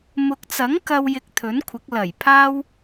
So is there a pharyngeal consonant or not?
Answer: no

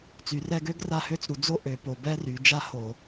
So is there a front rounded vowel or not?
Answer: yes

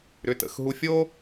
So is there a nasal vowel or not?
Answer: no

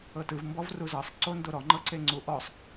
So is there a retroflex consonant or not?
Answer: no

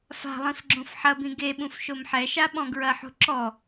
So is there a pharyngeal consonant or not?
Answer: yes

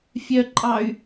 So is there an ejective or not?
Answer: yes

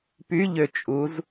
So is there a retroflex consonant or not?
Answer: no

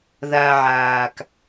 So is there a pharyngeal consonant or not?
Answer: yes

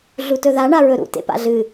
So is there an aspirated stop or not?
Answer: no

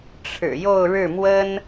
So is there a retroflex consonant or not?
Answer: yes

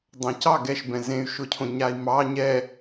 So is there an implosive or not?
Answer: no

